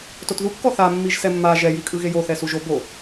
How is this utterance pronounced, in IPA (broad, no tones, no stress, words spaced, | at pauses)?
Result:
totðu kːɔθa mːiʒsɛmːa ʒɛ jikʼɯɣejo θɛsuʒobo